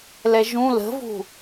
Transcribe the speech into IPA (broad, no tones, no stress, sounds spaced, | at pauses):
l ɛ ʒ ũ l ə̤ v ṳ